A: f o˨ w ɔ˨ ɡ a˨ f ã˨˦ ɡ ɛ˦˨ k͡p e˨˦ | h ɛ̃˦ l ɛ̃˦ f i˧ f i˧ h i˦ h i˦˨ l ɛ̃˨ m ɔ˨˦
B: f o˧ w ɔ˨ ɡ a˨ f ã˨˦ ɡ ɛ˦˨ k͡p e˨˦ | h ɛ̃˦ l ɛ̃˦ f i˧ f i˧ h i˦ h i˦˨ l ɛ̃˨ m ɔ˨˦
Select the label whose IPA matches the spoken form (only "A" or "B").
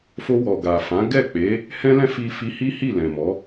B